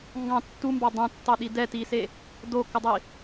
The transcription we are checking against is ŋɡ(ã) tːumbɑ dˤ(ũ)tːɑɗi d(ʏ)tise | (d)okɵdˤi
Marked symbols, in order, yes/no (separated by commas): no, yes, no, yes